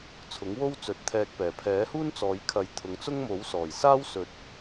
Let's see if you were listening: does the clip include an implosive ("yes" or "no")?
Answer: no